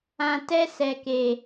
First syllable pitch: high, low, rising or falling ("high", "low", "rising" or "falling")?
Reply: low